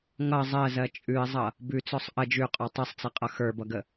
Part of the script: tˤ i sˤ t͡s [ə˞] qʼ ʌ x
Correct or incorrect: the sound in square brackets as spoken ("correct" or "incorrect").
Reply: incorrect